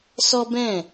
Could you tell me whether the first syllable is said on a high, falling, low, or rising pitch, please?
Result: high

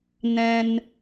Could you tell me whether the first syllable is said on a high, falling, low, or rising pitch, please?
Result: low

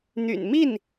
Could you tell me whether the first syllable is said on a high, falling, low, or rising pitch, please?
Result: low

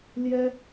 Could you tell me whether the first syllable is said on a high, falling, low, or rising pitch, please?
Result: high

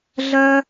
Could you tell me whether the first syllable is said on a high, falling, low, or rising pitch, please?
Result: high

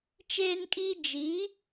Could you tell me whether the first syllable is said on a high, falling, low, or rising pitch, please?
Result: high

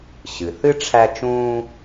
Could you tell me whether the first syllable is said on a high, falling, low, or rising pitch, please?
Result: low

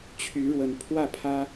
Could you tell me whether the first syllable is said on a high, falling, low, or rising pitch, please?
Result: rising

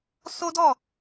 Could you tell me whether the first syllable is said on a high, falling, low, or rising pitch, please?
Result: high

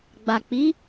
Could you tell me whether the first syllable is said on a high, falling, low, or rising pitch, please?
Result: low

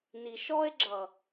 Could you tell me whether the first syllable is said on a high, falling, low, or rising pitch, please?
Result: low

